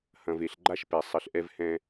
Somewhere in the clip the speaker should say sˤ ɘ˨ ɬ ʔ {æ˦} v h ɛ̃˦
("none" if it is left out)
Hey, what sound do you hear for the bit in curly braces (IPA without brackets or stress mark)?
ɛ˦